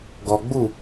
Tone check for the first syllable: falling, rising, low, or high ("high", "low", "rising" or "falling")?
low